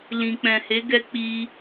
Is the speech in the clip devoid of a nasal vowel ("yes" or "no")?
no